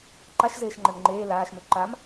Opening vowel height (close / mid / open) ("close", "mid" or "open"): open